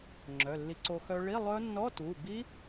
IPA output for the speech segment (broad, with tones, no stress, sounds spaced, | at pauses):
ŋ͡ǁ œ˩˧˩ lː i˧ ǀ o˧ x œ˧ ɭ i˧˥˧ lˠ œ˦˥ nː ɔ˧˥˧ t u˩˧˩ b i˦˥